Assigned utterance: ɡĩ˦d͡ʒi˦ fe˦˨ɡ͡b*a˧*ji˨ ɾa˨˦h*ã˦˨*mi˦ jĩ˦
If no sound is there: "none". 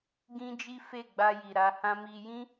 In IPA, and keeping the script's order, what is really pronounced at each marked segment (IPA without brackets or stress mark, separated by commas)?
a˧, ã˦